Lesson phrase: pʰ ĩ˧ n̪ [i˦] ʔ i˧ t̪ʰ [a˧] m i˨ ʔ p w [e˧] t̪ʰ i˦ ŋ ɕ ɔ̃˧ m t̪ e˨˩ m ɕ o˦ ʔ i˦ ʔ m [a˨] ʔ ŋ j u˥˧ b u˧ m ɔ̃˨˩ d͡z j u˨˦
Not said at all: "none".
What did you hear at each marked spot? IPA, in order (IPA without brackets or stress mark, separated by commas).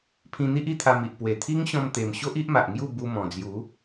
i˦, a˧, e˨˩, a˨